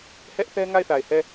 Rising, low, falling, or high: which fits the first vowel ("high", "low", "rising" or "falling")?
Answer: high